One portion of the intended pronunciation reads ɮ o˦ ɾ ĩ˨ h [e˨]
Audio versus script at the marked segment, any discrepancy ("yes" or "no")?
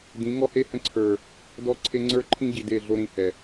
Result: yes